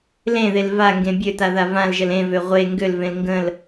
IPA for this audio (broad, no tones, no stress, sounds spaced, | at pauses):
l ẽ ð e l v a ŋ ɡ ẽ bʲ ø t a ð a v ã l ʒ ə l ẽ v ø ʁʷ e ŋ ɡ ø l v ẽ l ŋ ɡ ə̃ l